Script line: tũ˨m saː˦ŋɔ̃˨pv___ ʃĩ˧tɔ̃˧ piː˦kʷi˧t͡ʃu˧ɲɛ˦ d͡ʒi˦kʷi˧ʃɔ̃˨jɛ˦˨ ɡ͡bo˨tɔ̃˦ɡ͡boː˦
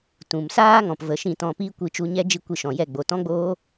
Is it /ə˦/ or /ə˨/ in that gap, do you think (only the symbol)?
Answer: ə˨